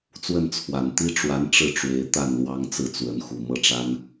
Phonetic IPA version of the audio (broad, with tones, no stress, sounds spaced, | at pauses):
t͡s w ə˥˩ n t͡sʰ w a˨˩ n t̪ i˥ ʈ͡ʂ w a˧˥ n ʈ͡ʂ ɻ̩˥˩ ʈ͡ʂ w e˧˥ ɪ̯ t̪ a˥˩ n l w ɑ˥ ŋ t͡s ɹ̩˥˩ t͡s w ə˧˥ n x u˨˩ m ɤ˥˩ ʈ͡ʂ a˥ n